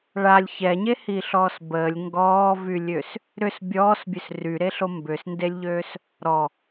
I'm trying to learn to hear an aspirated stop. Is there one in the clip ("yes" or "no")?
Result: no